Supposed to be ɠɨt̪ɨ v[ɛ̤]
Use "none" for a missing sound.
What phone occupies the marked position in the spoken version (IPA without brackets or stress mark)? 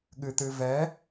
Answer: ɛ